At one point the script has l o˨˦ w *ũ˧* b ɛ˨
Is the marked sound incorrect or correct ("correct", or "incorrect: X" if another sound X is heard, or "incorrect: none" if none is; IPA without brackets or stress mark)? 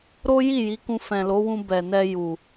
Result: correct